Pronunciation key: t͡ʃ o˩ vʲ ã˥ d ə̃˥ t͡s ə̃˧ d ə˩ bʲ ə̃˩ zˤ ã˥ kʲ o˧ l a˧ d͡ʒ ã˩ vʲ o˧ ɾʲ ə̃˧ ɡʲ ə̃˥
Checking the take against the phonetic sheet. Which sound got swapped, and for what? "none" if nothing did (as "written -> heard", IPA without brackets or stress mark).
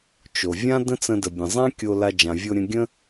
none